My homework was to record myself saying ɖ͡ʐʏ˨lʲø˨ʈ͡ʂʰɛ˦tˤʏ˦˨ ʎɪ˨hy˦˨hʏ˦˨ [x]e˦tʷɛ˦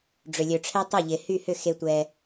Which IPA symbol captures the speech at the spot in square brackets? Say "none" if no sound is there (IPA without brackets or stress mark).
x